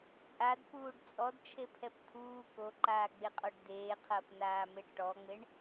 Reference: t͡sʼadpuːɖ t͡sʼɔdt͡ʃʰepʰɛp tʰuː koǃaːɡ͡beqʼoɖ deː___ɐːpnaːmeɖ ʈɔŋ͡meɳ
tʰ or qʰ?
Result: qʰ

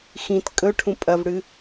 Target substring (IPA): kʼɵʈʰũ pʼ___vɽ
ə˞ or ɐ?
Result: ɐ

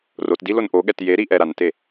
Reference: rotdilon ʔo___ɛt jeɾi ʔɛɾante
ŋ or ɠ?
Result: ɠ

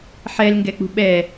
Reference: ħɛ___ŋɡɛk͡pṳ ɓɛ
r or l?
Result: l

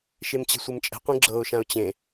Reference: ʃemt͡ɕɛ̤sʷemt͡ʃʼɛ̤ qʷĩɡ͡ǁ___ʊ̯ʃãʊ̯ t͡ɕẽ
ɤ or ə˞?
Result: ɤ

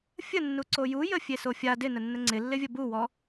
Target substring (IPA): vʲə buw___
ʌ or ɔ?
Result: ɔ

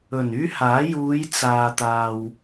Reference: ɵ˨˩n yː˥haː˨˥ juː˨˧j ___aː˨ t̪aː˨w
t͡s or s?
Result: t͡s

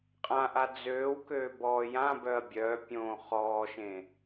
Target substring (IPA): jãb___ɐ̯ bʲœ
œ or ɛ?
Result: œ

